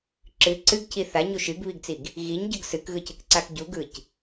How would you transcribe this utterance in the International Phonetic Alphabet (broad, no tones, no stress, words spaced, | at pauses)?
ǁɨ ǀɨɡcʰi θaɲu ʃɨɡβiɡt͡siɡ | ɣiɲɟɯɡ sɨkɣɯcɯkǀak ɟuɡɯc